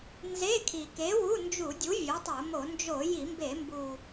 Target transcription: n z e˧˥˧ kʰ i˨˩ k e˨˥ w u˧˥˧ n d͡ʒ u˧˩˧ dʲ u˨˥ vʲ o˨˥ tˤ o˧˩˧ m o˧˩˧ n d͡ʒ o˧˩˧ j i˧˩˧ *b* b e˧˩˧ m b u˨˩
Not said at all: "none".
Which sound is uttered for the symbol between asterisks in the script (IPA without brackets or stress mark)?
m